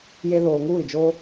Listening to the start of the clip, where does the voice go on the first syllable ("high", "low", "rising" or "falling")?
high